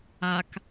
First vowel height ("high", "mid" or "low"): low